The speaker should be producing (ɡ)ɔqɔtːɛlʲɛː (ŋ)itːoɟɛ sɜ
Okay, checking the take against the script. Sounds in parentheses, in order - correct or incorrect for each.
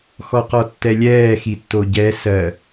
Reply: incorrect: x, incorrect: x

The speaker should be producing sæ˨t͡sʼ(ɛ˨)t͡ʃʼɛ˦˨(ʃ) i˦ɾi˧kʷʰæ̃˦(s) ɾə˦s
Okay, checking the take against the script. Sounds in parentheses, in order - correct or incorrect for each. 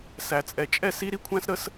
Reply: correct, incorrect: s, correct

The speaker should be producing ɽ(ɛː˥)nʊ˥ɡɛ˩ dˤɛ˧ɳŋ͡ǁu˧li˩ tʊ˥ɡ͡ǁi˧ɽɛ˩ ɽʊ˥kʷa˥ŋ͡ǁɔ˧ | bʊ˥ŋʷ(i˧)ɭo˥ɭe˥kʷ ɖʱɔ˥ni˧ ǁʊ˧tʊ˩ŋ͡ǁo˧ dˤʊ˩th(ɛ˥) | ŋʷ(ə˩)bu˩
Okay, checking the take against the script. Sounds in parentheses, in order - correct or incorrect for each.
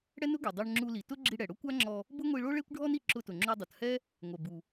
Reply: incorrect: ɛ˥, correct, correct, incorrect: ɛ˩

